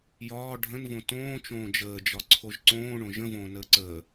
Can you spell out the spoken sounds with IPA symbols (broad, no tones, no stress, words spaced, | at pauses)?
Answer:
jɒː ɖʱə̃nvõ tõːt͡ʃõː d͡ʒəːd͡ʒɒǀʰoʒ ǀõːɳõ ʒə̃võːnəː ǀəː